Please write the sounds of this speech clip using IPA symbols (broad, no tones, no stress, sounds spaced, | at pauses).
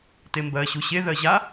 t e m b ɜ ɕ u ɕ e ð ɜ ʑ a